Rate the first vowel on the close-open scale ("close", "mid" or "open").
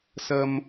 open